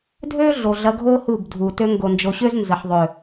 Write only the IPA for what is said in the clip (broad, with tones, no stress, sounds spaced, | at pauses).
dʱ ø˦ ɮ o˨ ɮ ɐ˧ ɡʱ o˦ h u˦˨ b dʱ u˨ t ø˧ ŋ ɡ o˨ n d͡ʒ o˨ ɕ ø˦ z n z ə˨ ħ ðˤ ø˨